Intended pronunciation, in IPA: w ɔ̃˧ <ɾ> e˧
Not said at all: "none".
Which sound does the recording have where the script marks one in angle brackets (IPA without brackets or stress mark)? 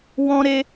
ɾ